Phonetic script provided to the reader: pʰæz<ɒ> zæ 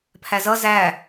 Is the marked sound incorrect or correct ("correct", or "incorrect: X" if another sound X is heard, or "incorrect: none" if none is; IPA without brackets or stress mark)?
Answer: incorrect: ʌ